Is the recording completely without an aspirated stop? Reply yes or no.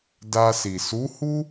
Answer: yes